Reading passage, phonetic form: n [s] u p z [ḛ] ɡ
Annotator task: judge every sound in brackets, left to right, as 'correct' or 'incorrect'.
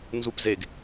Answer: incorrect: z, incorrect: e

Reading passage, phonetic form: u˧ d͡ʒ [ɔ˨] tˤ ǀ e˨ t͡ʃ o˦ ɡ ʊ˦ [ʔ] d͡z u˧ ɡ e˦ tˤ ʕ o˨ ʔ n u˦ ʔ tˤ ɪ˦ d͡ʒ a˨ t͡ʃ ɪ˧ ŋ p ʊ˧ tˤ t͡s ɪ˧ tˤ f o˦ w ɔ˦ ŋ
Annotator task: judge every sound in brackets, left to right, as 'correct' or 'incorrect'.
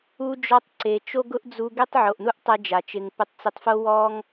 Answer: incorrect: ɔ˧, correct

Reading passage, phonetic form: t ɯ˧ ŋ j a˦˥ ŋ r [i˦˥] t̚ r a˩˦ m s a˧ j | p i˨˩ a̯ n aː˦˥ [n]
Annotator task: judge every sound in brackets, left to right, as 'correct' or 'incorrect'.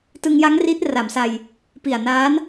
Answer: correct, correct

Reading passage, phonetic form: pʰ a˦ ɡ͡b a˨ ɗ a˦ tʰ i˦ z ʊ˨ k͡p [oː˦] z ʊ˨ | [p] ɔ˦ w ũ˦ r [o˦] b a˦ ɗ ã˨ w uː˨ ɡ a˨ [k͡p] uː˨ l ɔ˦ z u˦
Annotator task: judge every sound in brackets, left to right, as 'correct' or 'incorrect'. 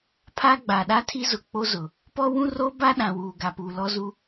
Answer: incorrect: o˦, correct, correct, incorrect: p

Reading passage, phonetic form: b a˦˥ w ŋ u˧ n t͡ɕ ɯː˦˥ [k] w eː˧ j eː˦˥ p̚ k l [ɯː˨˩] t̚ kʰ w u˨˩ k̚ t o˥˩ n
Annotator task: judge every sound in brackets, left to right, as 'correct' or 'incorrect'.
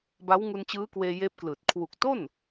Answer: correct, correct

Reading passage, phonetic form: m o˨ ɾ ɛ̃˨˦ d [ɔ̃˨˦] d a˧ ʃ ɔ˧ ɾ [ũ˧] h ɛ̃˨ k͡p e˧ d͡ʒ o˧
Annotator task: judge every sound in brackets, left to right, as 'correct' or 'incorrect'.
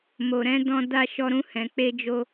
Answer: incorrect: ɔ̃˧, correct

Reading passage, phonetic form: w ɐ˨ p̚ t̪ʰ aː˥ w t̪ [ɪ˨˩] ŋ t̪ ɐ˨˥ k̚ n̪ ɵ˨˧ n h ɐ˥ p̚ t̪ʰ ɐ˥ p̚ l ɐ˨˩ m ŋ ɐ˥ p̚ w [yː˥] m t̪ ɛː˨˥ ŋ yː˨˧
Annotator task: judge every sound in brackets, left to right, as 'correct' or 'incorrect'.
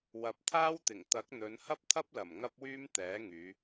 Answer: correct, correct

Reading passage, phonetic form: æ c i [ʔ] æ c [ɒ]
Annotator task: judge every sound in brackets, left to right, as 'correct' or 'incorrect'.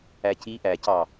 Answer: correct, incorrect: ɑ

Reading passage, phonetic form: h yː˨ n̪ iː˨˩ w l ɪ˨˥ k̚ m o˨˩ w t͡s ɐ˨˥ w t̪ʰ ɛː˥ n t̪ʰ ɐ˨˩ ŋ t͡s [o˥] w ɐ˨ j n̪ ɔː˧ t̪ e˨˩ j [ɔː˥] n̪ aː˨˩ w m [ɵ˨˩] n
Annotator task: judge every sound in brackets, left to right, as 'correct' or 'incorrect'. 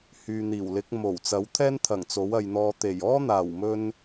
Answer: incorrect: o˨˥, correct, incorrect: ɵ˧

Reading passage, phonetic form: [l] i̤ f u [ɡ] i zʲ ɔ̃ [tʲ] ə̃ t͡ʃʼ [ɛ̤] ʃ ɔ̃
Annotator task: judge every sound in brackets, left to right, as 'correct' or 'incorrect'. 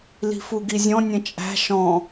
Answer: correct, correct, incorrect: nʲ, incorrect: æ̤

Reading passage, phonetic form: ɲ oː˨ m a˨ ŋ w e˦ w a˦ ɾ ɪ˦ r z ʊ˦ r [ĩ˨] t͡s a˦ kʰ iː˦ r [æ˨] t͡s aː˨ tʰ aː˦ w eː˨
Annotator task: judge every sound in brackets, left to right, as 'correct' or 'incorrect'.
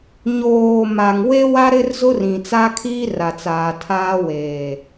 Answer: correct, incorrect: a˨

